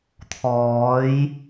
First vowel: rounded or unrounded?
rounded